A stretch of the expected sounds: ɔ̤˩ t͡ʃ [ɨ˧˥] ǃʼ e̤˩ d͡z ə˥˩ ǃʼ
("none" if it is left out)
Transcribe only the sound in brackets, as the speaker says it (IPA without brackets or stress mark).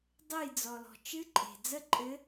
ɨ˧˥